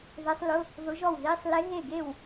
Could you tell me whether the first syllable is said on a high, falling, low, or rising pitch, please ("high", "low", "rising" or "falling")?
rising